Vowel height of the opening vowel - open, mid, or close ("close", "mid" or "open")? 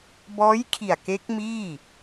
mid